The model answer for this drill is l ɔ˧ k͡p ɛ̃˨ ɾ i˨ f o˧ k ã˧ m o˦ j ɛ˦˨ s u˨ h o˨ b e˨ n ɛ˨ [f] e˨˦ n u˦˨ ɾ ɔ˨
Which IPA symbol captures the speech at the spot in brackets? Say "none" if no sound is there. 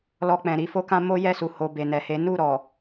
h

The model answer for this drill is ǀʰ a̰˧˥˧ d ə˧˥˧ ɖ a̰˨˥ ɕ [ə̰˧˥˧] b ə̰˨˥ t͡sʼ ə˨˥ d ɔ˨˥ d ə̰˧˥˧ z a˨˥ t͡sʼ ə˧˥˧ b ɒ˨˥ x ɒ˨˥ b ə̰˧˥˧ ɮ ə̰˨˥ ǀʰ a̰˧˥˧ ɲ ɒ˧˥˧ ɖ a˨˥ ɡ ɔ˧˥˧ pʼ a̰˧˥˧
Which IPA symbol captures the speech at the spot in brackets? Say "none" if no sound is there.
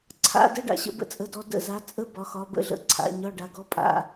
ə̰˧˥˧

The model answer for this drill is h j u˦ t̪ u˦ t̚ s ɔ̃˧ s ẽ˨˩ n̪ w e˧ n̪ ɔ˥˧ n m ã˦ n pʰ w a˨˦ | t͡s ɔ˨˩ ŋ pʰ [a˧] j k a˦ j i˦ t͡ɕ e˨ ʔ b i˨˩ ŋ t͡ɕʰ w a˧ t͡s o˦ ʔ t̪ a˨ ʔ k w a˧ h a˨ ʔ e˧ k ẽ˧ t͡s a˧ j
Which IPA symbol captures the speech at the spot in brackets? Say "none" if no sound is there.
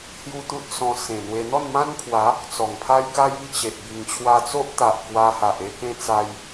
a˦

